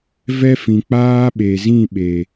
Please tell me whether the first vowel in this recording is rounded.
no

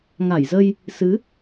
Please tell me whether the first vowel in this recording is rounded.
no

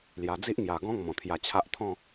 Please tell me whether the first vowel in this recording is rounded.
no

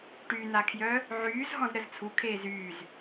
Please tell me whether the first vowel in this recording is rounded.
yes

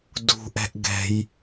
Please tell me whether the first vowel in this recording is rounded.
yes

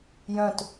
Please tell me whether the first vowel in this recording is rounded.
yes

